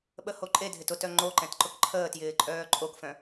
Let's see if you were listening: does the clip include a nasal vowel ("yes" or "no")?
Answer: yes